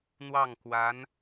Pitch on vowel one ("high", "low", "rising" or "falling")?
falling